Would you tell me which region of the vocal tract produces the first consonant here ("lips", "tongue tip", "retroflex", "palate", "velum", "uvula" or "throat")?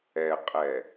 uvula